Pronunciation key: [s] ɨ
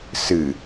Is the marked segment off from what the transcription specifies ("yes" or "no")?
no